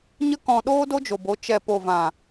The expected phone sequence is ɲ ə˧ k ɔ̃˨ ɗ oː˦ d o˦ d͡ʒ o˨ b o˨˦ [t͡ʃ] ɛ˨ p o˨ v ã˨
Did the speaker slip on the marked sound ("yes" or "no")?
no